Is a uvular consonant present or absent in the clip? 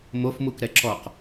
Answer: present